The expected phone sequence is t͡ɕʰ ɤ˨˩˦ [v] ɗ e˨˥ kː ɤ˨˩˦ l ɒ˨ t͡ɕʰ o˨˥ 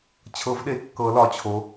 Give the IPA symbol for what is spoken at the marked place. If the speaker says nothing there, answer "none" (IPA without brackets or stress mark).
v